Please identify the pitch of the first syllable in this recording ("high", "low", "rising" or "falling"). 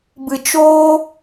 low